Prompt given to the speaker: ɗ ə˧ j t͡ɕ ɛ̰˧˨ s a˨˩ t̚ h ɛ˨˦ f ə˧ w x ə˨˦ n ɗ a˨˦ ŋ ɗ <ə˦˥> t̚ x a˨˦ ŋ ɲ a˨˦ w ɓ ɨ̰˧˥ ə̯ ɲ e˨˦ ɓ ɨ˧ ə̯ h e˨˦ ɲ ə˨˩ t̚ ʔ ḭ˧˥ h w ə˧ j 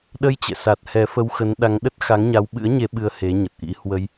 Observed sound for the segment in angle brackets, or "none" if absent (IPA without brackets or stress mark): ə˦˥